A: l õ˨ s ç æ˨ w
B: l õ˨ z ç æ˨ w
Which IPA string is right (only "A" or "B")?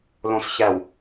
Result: A